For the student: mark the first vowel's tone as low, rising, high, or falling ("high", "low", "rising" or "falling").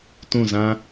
falling